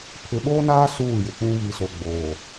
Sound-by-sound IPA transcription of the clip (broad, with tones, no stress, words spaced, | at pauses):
pʰɪ˨ɓoː˦naː˦ suː˦˨jɪ˨k͡pũ˦ βi˨so˨ɡ͡boː˨